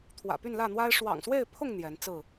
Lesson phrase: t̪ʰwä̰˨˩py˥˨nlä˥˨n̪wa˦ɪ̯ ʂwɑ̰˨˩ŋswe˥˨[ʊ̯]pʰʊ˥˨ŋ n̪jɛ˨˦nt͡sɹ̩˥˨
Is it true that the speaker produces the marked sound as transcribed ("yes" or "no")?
no